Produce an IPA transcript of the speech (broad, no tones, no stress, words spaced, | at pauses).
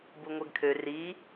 buŋʷɛɡkʰø ri